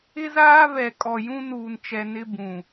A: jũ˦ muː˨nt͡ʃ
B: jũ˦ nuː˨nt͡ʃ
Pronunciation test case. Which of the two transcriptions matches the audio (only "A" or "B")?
B